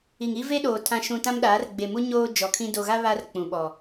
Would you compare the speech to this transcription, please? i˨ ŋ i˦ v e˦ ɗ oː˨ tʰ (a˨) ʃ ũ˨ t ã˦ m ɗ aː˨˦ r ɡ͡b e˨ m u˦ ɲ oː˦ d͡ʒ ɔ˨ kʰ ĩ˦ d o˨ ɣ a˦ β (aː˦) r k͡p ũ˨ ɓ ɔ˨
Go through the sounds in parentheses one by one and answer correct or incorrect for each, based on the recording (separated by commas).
incorrect, incorrect